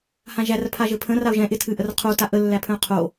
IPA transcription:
h ã ʒ æ r pʰ a ʒ ɘ pʰ ə̃ r a ʊ̯ ʒ ɛ̃ ʔ ɪ tʰ ɨ ʔ ə r qʰ o t a ʔ ə lː æ pʰ ə̃ ʊ̯ qʰ o

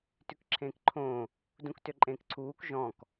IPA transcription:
t ʉ k ǁʰ ẽː k ǃʰ õː | d ũ k t ø ǃʼ ẽː k ǀʰ uː k ʒ ɔ̃ k

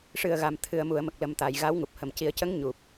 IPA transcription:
ʂ ɨ˨˩ ə̯ ɣ a˨˩ m t̪ʰ ɨ˨˩˨ ə̯ m u˨˩˨ ə̯ m ə˨˩ k̚ l ə˨˩ m t̪ a˨˩˨ j ɣ a˧˥ w ŋ u˨˩ p̚ h ə˨˩ m c i˨˩˦ ə̯ c ə˧˥ ŋ ɲ u˨˩ p̚

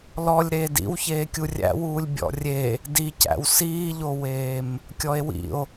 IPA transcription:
l ɔ lʲ ɾ eː d ḭ w ç eː kʲ u rʲ æ̰ w uː lʲ bʲ ɔ̰ rʲ e | d i c æ̰ w s iː ʎ o w eː m | kʲ ɔ e̯ w ḭ o̯

